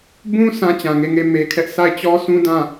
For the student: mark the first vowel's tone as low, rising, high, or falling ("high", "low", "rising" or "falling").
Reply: high